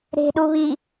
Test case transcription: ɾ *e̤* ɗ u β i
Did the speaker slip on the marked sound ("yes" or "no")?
no